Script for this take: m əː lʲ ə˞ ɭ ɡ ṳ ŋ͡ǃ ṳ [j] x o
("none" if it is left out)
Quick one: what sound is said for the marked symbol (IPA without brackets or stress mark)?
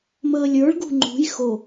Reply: j